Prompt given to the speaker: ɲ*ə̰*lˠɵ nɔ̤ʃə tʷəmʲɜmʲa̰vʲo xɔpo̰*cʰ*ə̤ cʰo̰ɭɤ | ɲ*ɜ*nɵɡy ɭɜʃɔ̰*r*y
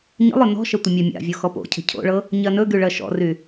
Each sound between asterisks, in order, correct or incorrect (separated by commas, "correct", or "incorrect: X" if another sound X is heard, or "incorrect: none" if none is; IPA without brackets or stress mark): correct, correct, correct, correct